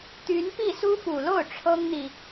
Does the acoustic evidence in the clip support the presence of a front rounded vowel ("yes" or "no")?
yes